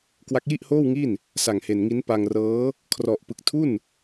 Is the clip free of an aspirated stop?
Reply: no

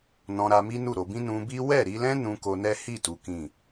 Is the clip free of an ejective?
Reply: yes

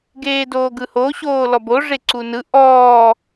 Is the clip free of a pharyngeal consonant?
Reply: yes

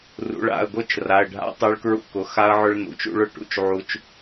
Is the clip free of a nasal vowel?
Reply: yes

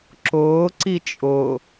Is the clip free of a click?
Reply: no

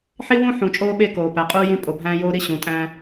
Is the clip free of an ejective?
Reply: no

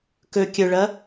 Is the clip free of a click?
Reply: yes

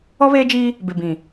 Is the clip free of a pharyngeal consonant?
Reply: yes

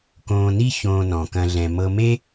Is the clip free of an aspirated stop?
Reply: yes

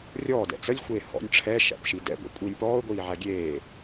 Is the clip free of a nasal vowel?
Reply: yes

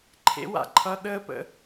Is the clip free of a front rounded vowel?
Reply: yes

